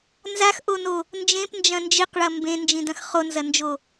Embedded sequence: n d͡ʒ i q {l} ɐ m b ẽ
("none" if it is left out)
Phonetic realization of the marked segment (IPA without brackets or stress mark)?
ɭ